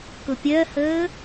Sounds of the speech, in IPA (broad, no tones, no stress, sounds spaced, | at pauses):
k ʊ pʲ ɜ h əː